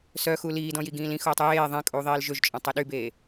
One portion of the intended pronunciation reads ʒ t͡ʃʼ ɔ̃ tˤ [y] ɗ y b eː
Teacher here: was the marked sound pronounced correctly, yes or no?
no